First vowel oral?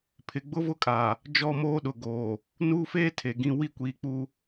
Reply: yes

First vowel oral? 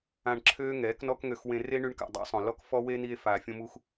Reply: no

